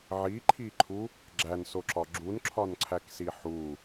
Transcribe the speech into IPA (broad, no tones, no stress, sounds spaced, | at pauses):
ʕ i ǃʰ i ǃʰ u | ɡ͡ǁ æ n s o ǁ ɒ ɡ͡ǁ u n ǁʰ ɒ n ǀʰ æ k s i ħ u